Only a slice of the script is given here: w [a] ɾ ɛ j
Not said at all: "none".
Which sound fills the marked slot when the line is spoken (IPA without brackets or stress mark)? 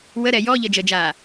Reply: ə